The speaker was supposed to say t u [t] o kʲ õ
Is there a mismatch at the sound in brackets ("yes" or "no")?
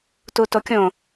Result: no